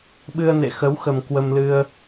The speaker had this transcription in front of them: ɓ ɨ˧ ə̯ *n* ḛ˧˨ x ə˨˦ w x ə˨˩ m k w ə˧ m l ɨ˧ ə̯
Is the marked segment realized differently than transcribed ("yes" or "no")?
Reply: no